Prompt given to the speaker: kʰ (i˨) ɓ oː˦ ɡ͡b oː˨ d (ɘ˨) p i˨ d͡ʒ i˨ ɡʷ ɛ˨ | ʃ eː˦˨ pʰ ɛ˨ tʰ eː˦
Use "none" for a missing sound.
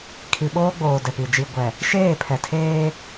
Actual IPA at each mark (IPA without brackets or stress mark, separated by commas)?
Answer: i˨, ɛ˨